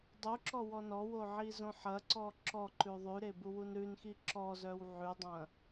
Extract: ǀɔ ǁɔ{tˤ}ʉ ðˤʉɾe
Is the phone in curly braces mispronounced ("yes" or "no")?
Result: yes